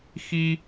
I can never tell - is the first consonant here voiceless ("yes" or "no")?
yes